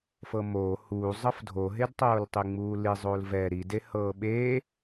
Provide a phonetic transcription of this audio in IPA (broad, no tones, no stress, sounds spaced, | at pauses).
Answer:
f ɤ m oː h uː zˤ ɤ f dʱ o ɦ e d tˤ oː l tˤ i ŋ͡m uː l i zˤ oː l v ɛ ɾ i d e h ɤː ɓ e